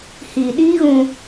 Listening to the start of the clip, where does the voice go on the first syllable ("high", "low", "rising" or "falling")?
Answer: low